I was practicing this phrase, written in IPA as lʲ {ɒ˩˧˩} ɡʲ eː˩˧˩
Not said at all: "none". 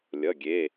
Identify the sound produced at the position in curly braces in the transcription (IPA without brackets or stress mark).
ʌ˩˧˩